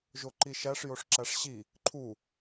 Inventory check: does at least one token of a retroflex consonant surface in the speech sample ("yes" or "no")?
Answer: yes